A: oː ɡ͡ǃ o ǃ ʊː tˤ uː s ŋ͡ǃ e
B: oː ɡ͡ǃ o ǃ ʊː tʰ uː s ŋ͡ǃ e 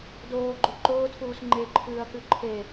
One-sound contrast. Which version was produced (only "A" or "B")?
B